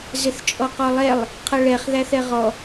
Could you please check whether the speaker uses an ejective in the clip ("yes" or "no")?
yes